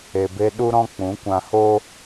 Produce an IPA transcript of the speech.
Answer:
e˨ b e˧ ɗ u˧ ɾ ɔ̃˧ k͡p ũ˨˦ kʷ ã˧ h o˦

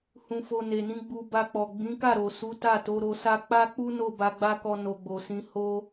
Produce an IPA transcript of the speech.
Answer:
h ũ˧ f o˧ n e˨ n ĩ˨˦ ɡ͡b u˧ b a˧ k͡p ɔ˨ ɡ͡b ĩ˨˦ k a˦˨ ɾ o˨ s u˨˦ t a˦˨ t o˨˦ ɾ o˧ s a˦ k͡p a˦ k͡p u˦ n o˦˨ b a˧ ɡ͡b a˦ k ɔ˧ n o˧ ɡ͡b o˨ s ĩ˨˦ h o˧

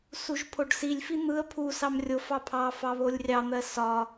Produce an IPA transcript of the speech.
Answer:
s u ʒ pʰ o ɖ s i lʲ f i n̪ ɯ ə̯ pʰ u s ɑ m rʲ o f ɑ pʰ ɑ f ɑ β o lʲ rʲ ɑ n̪ ɜ s ɒ

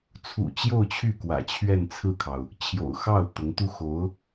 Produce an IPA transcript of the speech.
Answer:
t͡sʰ ṵ˨˩ t͡ɕ j o˥˧ ʊ̯ t͡ɕʰ y˥˩ k w ä̰˨˩ t͡ɕʰ ɥ ɛ˥˧ n t͡sʰ ɹ̩˥˩ kʰ ɑ˩ ʊ̯ | t͡ɕʰ j o̰˨˩ ʊ̯ x ɑ˥˩ ʊ̯ t̪ ʊ˧˥ ŋ t̪ u˥ x o˧˥ ʊ̯

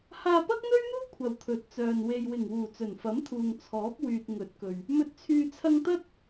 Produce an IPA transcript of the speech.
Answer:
h aː˧ p ɐ˥ k̚ n̪ ɵ˥ ɥ n̪ uː˥ kʷʰ ɐ˨ w t̪ʰ ɵ˨ t̚ t͡s œː˨ n w e˨ j w ɪ˨˩ ŋ w uː˨˩ t͡s ɵ˨˩ n f ɐ˨˥ m t̪ʰ uː˨ ŋ t͡sʰ ɔː˨˥ p̚ w yː˨ t̚ ŋ ɵ˨˥ t̚ k ɵ˨ ɥ | m ɵ˨ t̚ t͡sʰ yː˨ t͡sʰ ɐ˧ ŋ t̪ ɐ˥ t̚

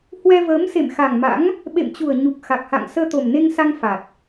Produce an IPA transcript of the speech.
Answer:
h w ɛ˧ v əː˨˦ m s ḛ˧˨ m x a˨˩ ŋ m a̰˧˥ ŋ | ɓ ḛ˧˨ m t͡ɕ u˨˩ ə̯ ɲ u˨˩ k̚ x a˨˩ k̚ h a̰˧˨ ŋ s əː˧ t̪ o˨˩ m n e˧ ŋ s a˧ ŋ f a˨˩ t̚

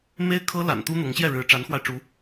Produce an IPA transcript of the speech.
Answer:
m e˥ ɪ̯ kʰ ɤ˥ l a̰˨˩ n t̪ u˥ n̪ ʊ˧˥ ŋ ɕ j ɛ˥˩ ɻ ɻ̩˧˥ ʈ͡ʂ a˧˥ n x w a˧ ɪ̯ ʈ͡ʂ u˧˥

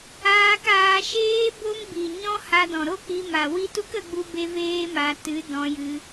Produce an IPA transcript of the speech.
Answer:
aː˧ k aː˧ ʃ eː˦ b o˦ ŋ b i˨ ɲ ɔ̃˦ h a˧ d ɔ̃˨ ɾ o˦ k͡p i˧ m a˨ w i˦ t u˦ k ə˧ ɡ͡b u˧ b e˧ v eː˦ m a˧ t ɨ˨˦ d ɔ̃˧ j ɨ˧

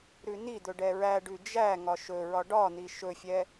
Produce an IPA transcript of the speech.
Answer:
ɾ ʉ n̪ i d̪ ɵ ɖ ɛ ɹ æ ɖ ʉ d͡ʒ æ ŋ ɒ ʃ ɵ ɹ ɒ ɖ ɒ n̪ i ʃ ɵ fʲ ɛ

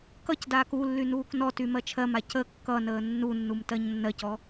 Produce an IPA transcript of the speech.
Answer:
k ʌ c d aː k u lː y n uː k n ɔ t y m ɜ t͡ʃʰ ɜ m a c ə kː ʌ n əː nː u nː u m t ɜ ɲ nː ɜ c ɔ

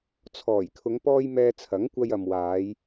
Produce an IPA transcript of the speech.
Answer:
t͡sʰ ɔː˨˩ j kʰ ʊ˨˧ ŋ p ɔː˧ j m ɛː˧ t͡sʰ ɐ˨˥ ŋ kʷ ɐ˧ j ɐ˨ m w aː˨˧ j

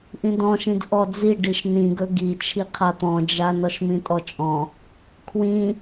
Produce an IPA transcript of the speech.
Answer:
ʔ ĩ d ɔ̃ ʃ ĩ d ʔ ɔ d͡z i ɖ i ʃ n ĩ ɡ ɵ ɡ i t͡ʃʰ i qʰ a t̪ ɔ̃ d͡ʒ a n ɔ ʃ m ĩ tʼ ɔ t͡ʃʼ ɔ̃ | kʰ w ĩ

